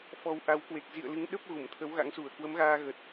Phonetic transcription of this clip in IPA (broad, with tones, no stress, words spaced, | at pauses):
fɔ˨˦w ʔa˨˦wkwe˨˩k̚ zḭ˧˨ə̯lɨ˨˦ŋɗə˦˥p̚ ɣu˧˩mt̪ʰə˨˦wɣa̰˧˥ŋsu˧˩ə̯ kwə˨˦mɣaː˧ɣə˨˩t̚